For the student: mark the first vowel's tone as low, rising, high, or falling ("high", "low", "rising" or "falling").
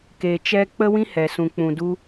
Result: low